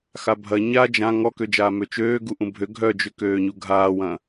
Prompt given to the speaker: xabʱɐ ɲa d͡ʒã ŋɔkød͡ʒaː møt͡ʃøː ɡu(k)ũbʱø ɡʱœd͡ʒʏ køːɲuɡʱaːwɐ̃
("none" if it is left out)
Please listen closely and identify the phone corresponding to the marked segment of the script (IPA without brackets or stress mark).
ʔ